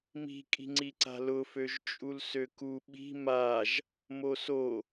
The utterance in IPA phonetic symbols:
mi̤kʼi̤ŋ͡ǀiǀa̤ lʊføʒ t͡ʃʼulsøku ɓi̤ maʒ | moso

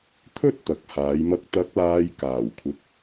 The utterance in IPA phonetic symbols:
t̪ʰɵ˥t̚ t̪ɐ˨˥k̚haː˨˧j mɐ˨k̚t̪ɐ˨˥k̚laː˨j kaː˨˩wkʷʰɪ˨˥k̚

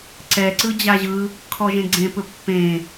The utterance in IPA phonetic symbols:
ǀɛǀɯ d͡ʑaʑɯ | kʰɔʒẽɡ͡ǀẽpɵ pːẽ

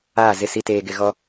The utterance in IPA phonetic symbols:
aː˦˨zɪ˦˨si˦ teː˨ɡɪ˨ɣɔ˨

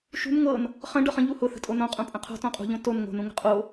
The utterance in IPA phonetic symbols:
ʃṳn ŋɤn | χə̃ ɖɤχə̃ ʎuhʊ θə̤tʼonõ qʼũpʼə̃qʰo̤ tõqʼṳʎõ ton ŋo̤nũŋə̤ qʼo

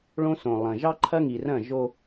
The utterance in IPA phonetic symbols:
ɭõ˦sõ˨ lˠɐ̃˨ ʒɑ˦ǃʰɐ˦ŋi˨rɐ̃˦˨ ʒo˦

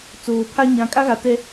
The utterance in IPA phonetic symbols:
t͡soː˨pʰa˦ ɲã˨˦kʼa˦ɣa˨ tɛ˦

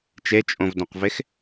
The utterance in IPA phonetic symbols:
t͡ʃet͡ʃʼõvdõqvex

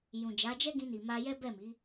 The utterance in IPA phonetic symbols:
jũ˨ d͡ʒa˨˦d͡ʒɛ˦ɡĩ˧ ni˨ma˧ jɛ˦bɛ˦˨mi˨˦

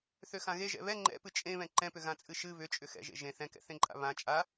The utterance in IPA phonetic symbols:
θøxãɣe ʒɛ̰βɛ ŋ͡ǃɛ̰ pɨt͡ʃʼẽβɛ̃ ǃɛ̃pʏ ɣãt͡sʼɨʃɨ βʏt͡ʃʼʏ xɛ̰ʒḛ ʒẽ θɛ̃kɛ̰θẽǃʼa̰ βã t͡ʃʼa

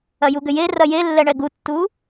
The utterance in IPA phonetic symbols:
ɐjuɡʏje rɐjelːɛɳɛ ɡutːu

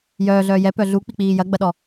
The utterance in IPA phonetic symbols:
jœːɮœː jɛpœ ɮuk͡pik͡piː jɐɡ͡bɐɗɔ

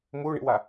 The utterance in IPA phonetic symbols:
muɳḭwa

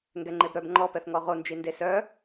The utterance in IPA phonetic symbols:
ŋɡɛŋ͡ǃebɾœb ŋ͡ǃɔpɛθŋɔ ʁond͡ʒi ndesœ

